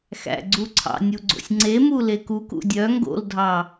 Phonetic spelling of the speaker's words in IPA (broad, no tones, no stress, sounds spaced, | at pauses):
x æ̰ ɡ͡ǀ u ǀʰ ɑ̰ nʲ u ɡ͡ǀ o̰ sʲ ŋ͡ǀ e m u l e k u k ṵ dʲ œ ŋ ɡ o̰ l dʱ ɑ